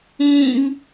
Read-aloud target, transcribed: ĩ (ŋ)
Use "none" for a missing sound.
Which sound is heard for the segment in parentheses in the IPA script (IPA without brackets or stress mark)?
ŋ